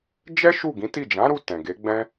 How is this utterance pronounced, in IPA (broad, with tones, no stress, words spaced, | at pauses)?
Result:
d͡ʒɛ˦ ʃu˦˨ɡĩ˨˦ti˦˨ d͡ʒã˨˦ɾu˧ tɛ̃˨ɡe˨˦ɡ͡bɛ̃˦